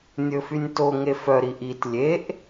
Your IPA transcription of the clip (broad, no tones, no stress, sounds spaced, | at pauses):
nʲ ɵ f y nʲ t o ŋ e f œ ɾ i ʔ i t lʲ e ʔ